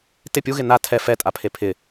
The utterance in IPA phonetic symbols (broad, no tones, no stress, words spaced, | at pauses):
tɪ pʲuɣɪ na tʰɛ fɛtʼapʰe pʰɪ